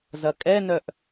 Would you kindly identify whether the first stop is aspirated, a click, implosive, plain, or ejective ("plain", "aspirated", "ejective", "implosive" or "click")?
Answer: ejective